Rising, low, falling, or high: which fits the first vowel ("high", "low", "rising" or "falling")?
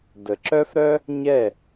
low